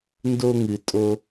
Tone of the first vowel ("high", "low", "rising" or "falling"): high